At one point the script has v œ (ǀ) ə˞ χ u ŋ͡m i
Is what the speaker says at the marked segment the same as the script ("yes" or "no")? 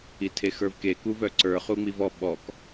yes